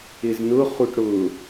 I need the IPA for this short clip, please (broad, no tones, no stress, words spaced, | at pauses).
ɪznʊχuʈ ɽʊ